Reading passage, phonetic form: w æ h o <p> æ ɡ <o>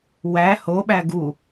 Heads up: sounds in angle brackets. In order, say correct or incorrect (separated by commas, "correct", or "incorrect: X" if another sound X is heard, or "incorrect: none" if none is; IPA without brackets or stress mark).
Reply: incorrect: ɓ, incorrect: u